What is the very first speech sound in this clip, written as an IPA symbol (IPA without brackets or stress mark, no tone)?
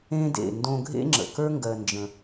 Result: ẽ